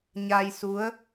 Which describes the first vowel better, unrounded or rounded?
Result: unrounded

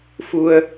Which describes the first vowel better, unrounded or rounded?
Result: rounded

